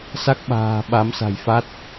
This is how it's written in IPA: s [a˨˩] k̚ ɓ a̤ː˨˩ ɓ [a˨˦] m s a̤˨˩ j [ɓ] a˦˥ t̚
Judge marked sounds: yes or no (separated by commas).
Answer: no, yes, no